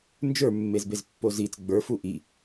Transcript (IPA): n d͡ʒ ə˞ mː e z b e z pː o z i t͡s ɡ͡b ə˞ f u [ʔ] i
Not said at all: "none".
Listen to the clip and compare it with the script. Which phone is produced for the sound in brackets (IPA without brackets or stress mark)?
ʔ